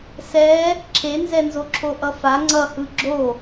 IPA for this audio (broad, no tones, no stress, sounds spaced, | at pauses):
s ɛ | ǁʰ e n z ɛ n z o ǁʰ o ʔ ʌ f a ŋ͡ǀ ʌ h ɯ ɡ͡ǁ o